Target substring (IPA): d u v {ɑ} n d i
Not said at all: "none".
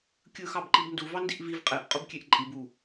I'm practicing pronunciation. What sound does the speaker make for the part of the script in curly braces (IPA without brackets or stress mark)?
ɑ